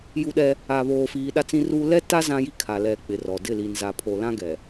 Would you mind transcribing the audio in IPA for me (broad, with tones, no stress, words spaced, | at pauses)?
ju˦ɗɛ˦ | a˨βoː˨fiː˨ ɗa˦t͡sĩ˦ru˦ lɛ˦ta˦ zã˦ji˦kʰa˨lɛ˨ k͡pɪ˨rɔ˨ dɪ˦˨li˨nza˨ pʰo˨lã˦ɡɛ˨